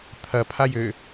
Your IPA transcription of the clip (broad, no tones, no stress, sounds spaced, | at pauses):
t̪ʰ ɐ pʰ a j ø